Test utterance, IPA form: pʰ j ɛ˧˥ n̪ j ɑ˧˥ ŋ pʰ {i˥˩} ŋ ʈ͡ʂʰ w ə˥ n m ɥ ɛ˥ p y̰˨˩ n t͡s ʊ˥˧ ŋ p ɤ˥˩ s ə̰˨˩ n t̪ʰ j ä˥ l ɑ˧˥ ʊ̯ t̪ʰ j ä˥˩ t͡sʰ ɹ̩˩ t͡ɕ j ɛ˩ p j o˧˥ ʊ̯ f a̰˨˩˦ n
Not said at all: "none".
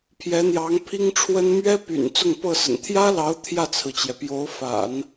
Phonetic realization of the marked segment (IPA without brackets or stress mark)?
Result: i˥